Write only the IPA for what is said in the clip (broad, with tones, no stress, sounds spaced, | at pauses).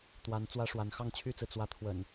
t̪ w a˨˦ n t͡s w ä˦ ʂ w a˨˦ n x ɑ˥˨ ŋ t͡ɕʰ y˥˨ t͡s ɹ̩˩ t͡s w ä˨˦ t̪ʰ w ə̰˨˩ n